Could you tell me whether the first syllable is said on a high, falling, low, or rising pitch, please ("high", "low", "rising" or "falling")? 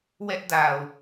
high